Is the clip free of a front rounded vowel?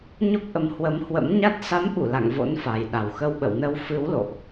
yes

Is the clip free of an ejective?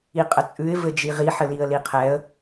no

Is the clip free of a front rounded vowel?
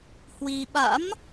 yes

